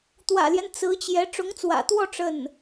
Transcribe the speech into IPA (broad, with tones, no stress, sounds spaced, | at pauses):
t̪ w ä̰˨˩ l j ɛ˦ n t͡s ɹ̩˧˥ t͡ɕ j ɛ˧˥ ʈ͡ʂ ʊ˧˥ ŋ t͡s w ä̰˨˩ t̪ w ɔ˥˧ ʈ͡ʂ ə˥˩ n